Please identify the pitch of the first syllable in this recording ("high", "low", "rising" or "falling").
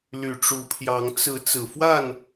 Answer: low